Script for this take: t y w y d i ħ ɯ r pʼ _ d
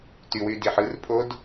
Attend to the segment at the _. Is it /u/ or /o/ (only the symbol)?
o